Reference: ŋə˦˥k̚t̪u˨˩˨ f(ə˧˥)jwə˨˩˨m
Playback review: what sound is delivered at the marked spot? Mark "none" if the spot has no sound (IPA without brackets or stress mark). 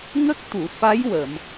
a˧˥